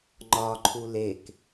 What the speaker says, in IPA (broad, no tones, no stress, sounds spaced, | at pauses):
ŋ͡ǃ ɒ ǃʰ u l e k